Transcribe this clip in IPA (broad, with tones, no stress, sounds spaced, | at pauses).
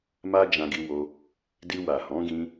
m a˦ d͡ʒ ã˧ ɡ i˧ w o˧ | d i˧ w a˨ h ɔ̃˨˦ ɡ ĩ˧